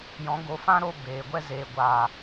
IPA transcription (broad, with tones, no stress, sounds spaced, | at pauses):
j ɔ̃˨˦ ɡ o˨˦ f ã˦ ɾ o˧ b eː˨ ɡʷ ɛ˧ z e˨ ɡʷ a˨